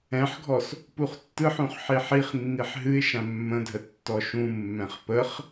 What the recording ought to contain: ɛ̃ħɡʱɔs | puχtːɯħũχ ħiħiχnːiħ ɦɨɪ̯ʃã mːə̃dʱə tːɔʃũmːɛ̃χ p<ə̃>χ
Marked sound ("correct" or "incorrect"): incorrect